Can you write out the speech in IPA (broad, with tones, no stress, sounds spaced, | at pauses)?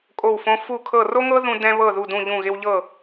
kʼ o˦˨ w f õ˦ f u˦˨ kʰ ɤ˦˨ r o˦ ŋ ɤ˦ ð ũ˦ d ɛ̃˦ β ɤ˦˨ ð u˦˨ d ũ˦˨ ʎ ũ˦˨ ɣ ɪ˦ w ʎ ɤ˦˨